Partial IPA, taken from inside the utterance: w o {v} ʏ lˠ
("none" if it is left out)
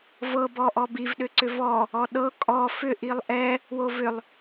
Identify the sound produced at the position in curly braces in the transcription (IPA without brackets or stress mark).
v